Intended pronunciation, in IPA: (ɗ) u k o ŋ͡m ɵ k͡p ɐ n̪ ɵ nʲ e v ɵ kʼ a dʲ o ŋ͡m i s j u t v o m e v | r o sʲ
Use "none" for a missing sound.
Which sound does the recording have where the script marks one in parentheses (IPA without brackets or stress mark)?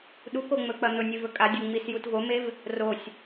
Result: ɗ